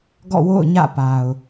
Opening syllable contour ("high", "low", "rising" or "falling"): falling